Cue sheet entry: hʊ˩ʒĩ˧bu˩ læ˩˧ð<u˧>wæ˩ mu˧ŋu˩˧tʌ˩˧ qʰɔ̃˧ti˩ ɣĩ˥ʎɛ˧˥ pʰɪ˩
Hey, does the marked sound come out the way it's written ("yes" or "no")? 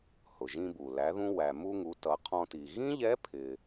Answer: no